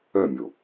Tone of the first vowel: falling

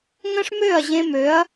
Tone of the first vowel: high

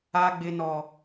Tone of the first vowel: high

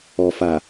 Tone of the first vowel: low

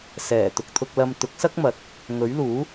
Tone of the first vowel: low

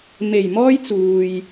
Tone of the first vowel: low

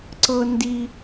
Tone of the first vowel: high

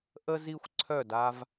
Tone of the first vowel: high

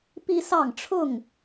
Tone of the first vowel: high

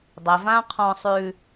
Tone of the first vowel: low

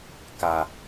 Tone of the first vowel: low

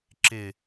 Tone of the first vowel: low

